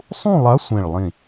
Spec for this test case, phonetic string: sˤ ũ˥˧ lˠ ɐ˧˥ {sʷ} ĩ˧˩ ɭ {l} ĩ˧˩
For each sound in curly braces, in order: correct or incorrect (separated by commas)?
correct, incorrect